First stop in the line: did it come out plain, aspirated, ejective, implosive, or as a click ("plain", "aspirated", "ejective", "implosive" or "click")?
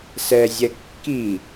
plain